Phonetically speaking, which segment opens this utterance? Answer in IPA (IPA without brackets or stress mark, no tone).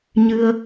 ɲ